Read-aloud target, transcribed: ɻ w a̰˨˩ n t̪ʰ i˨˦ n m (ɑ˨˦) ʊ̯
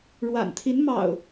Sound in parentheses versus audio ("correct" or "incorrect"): incorrect